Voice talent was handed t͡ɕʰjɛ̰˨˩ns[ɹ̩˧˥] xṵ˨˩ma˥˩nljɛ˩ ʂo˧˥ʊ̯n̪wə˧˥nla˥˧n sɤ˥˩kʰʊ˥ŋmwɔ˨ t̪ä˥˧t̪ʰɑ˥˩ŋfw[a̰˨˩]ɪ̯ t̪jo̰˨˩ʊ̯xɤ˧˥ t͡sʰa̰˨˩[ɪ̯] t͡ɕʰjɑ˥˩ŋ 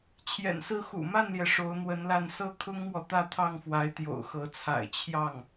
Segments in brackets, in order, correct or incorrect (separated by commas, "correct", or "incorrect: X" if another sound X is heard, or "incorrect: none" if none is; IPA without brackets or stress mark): incorrect: ɹ̩˥˩, incorrect: a˧˥, correct